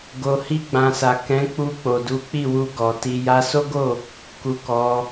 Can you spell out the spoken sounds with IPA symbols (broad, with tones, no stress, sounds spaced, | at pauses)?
ɡ o˨ h i˧ ɡ͡b ã˨ s a˨ k ɛ̃˨˦ k͡p u˧ k͡p o˨ d u˨˦ k͡p i˦˨ w u˧ ɡ ɔ˨ t i˧ j a˧ s o˦ ɡ o˦˨ | k u˧ k ɔ˧